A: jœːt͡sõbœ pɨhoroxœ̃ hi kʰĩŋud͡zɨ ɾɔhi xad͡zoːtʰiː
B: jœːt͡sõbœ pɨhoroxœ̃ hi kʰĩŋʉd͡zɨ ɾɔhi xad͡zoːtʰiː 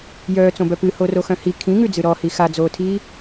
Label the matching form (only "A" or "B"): B